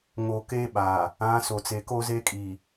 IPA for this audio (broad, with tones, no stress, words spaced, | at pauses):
ŋo˨ke˦ ɓa˨ | ã˨˦ so˨t͡se˨ko˦ ze˦kʼi˨